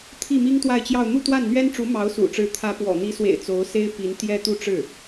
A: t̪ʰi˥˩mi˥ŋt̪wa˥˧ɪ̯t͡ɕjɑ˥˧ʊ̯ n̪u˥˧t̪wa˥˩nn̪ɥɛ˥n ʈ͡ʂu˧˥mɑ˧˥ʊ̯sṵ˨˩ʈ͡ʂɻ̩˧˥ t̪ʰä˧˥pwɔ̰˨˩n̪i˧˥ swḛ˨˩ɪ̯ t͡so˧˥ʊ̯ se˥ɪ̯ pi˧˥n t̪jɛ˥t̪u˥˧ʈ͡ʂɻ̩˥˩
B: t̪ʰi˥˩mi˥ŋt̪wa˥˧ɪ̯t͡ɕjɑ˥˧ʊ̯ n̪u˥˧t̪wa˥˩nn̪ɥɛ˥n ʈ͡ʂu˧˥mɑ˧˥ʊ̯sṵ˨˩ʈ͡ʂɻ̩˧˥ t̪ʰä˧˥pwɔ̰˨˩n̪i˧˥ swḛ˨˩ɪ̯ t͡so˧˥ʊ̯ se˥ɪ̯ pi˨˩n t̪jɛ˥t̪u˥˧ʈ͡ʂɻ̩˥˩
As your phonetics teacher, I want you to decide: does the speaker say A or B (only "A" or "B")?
A